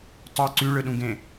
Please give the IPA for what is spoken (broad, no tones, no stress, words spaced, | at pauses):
tˤɯ ǀyɭɯɗũɡẽ